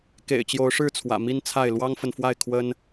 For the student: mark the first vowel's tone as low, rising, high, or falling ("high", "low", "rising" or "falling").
low